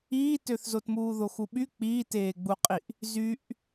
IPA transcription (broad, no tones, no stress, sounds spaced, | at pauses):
iː t ø θ z o t m uː ð o x u ɓ y k͡p iː t eː ɡ͡b u qʼ i ʔ | z y ʔ